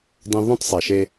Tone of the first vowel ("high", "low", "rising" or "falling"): high